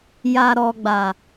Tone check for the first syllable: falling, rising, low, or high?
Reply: low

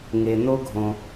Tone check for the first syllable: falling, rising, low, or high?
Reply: low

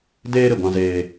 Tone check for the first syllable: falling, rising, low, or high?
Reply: high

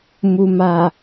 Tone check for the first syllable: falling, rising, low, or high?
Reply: low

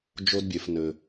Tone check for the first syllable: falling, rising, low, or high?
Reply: low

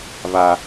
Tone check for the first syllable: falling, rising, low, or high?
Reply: high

